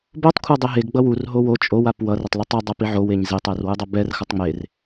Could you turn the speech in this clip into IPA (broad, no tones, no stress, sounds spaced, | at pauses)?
b o tˤ kʷʰ a dˤ e ɦ e ɡ ɡ͡b ʌ w u r ɦ o w o t͡ʃʼ o w a p w ʌ r ʌ tˤ l ɛ tˤ ɯ dˤ a p i ʕ o w e ɲ z e tˤ ɛ r w ɯ dˤ ʌ b ɛ r x ʌ tˤ ŋ͡m e r